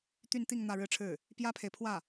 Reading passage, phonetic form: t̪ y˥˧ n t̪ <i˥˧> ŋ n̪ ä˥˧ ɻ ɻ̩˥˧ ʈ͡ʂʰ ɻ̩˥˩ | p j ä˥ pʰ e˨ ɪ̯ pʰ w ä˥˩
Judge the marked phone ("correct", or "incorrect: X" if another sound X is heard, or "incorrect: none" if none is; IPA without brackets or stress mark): correct